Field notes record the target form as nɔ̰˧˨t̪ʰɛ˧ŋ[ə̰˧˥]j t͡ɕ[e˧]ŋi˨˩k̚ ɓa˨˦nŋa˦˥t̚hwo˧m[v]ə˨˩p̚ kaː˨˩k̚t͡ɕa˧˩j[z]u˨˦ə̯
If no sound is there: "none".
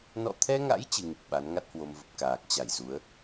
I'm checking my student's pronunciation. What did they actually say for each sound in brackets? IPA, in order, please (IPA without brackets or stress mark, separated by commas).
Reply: a̰˧˥, ɨ˧, v, z